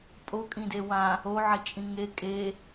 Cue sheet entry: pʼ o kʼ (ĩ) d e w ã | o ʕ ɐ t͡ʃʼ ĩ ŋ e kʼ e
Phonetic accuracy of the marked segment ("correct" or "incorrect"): correct